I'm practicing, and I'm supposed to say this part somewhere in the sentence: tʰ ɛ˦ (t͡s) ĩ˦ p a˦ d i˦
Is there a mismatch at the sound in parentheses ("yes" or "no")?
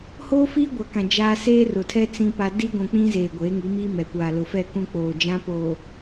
no